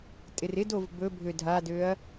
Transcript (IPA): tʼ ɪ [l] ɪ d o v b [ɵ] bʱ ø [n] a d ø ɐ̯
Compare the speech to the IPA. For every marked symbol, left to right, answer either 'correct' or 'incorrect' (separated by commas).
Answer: incorrect, correct, incorrect